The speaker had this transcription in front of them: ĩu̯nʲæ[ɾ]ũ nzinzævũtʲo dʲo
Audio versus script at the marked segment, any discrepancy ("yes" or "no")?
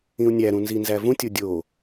no